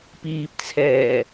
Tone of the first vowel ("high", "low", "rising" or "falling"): low